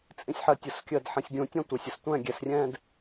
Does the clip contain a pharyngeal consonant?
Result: yes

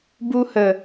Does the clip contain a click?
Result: no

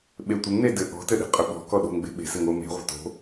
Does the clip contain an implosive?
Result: yes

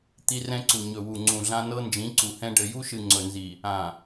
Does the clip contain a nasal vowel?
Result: yes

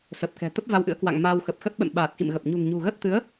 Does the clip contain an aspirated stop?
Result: no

